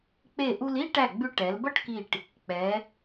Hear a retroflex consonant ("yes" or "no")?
yes